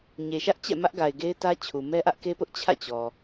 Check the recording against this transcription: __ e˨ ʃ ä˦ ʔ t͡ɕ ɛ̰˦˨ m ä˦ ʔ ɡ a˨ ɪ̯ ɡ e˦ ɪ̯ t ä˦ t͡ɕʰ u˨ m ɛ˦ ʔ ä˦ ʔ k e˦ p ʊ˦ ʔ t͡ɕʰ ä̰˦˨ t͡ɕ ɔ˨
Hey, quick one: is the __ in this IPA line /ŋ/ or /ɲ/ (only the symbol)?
ɲ